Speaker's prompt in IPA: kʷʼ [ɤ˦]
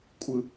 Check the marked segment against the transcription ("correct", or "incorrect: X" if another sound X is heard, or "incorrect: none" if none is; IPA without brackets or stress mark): incorrect: ɯ˦